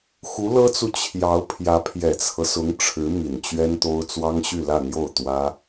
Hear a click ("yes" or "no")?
no